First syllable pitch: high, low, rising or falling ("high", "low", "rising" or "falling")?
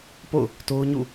falling